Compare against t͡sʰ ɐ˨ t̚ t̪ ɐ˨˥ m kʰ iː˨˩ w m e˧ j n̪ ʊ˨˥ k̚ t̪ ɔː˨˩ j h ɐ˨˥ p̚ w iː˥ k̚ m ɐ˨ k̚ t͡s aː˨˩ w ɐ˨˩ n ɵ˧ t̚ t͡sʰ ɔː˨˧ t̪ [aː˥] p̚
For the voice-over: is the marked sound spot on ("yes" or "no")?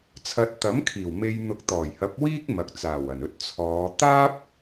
yes